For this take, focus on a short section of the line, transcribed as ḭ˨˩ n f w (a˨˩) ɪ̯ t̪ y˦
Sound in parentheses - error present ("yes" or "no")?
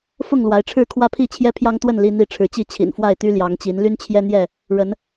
yes